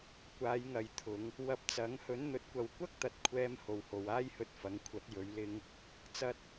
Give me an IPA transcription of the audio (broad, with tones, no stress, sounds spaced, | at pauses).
kʷ aː˨˧ j ŋ ɐ˨ j t̪ʰ ʊ˨˧ ŋ | w ɐ˧ p̚ t͡s ɐ˨˥ ŋ h ɵ˨˥ n n̪ ɵ˨˥ t̚ kʷ ɐ˨ w kʷ ɐ˥ k̚ t̪ ɐ˨˥ t̚ kʷʰ ɛː˧ m h o˨ w h o˨ w aː˥ j h ɵ˧ t̚ f ɐ˨˧ ŋ kʷʰ ɐ˨˥ t̚ j ɵ˨˧ ɥ l ɪ˧ ŋ | t͡s ɐ˧ t̚